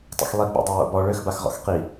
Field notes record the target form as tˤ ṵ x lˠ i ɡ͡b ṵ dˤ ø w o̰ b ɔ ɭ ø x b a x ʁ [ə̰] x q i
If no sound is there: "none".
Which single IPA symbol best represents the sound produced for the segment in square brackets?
ɔ̰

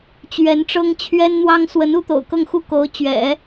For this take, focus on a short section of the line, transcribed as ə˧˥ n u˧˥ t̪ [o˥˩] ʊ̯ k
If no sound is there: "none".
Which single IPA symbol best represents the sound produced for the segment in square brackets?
o̰˨˩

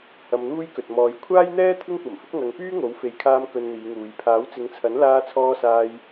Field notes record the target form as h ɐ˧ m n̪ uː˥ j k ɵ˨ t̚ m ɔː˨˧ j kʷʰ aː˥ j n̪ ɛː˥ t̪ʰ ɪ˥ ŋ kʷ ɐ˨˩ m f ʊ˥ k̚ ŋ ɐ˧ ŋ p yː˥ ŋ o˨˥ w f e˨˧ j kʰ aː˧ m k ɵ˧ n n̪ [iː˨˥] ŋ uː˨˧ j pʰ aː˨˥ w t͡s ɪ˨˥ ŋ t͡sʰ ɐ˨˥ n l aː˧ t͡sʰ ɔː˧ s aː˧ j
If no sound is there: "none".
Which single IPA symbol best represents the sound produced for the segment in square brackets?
iː˨˧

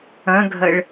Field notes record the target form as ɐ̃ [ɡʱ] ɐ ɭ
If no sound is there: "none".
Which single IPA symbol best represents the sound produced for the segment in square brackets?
ɡʱ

